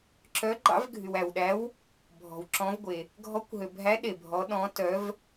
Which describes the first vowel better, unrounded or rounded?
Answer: rounded